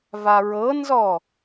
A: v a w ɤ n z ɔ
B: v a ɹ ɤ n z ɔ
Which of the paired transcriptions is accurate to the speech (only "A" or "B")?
B